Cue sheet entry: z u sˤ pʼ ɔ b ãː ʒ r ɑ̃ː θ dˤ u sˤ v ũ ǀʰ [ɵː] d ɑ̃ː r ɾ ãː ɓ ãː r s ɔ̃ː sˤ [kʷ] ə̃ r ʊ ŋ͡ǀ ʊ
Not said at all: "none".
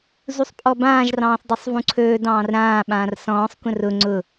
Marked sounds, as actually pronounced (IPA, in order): ɵː, kʷ

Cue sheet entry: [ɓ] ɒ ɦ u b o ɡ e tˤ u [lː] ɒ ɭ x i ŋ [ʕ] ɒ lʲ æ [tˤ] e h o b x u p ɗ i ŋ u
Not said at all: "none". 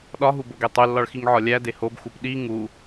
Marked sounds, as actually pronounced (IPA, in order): ɗ, lː, ʕ, d

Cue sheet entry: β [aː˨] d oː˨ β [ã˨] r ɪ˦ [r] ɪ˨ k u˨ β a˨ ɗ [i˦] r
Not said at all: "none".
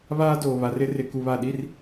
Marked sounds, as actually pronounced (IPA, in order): aː˦, a˨, r, i˦

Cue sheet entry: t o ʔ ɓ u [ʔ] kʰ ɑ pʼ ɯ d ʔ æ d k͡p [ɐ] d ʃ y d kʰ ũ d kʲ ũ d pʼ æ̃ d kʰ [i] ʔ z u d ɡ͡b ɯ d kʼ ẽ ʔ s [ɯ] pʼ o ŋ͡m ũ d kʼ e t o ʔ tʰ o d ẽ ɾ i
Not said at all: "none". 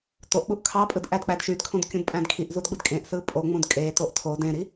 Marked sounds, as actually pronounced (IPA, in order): ʔ, æ, i, ɯ

